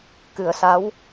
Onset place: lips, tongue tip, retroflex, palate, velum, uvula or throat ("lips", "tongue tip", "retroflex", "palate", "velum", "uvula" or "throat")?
velum